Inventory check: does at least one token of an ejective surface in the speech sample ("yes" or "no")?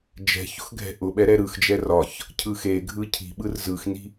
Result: no